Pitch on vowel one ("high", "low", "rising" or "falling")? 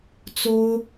high